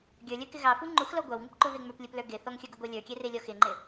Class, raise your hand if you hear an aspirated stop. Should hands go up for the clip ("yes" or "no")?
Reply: no